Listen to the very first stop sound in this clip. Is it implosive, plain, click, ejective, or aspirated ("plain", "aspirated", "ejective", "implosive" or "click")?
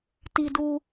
plain